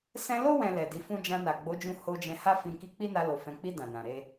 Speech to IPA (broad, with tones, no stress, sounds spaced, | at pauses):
s ɛ̃˧ l o˦ w ɛ̃˧ l ɛ˨ d i˨˦ f ũ˦ d͡ʒ ã˧ n a˨ ɡ͡b o˨˦ d͡ʒ ũ˧ h o˧ d͡ʒ ɛ̃˧ h a˦ f ĩ˧ k i˧ k͡p i˦ n a˧ l o˨ f ɛ̃˨ k͡p i˧ d ã˨ n ã˨ ɾ e˧